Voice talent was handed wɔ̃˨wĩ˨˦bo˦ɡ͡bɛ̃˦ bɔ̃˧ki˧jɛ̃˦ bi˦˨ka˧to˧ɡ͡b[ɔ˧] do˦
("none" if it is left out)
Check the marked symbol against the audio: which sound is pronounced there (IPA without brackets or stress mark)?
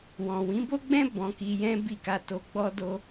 ɔ˦